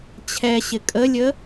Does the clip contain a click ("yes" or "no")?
no